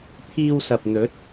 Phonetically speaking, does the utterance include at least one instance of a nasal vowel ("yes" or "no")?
no